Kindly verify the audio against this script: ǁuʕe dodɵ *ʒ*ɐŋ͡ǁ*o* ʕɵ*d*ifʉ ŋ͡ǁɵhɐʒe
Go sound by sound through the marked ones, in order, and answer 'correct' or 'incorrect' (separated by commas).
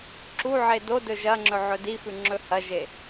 correct, incorrect, correct